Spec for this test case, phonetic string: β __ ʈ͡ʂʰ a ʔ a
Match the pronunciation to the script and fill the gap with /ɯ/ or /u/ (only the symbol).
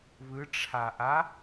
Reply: ɯ